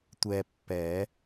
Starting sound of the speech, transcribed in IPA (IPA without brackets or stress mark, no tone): tʷ